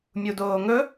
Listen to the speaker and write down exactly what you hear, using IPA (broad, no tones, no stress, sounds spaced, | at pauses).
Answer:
mʲ u d oː ŋ ɵ